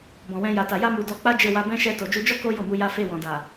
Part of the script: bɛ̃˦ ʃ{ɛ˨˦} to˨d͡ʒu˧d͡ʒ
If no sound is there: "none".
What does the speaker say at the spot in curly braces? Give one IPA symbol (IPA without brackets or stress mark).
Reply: ɛ˧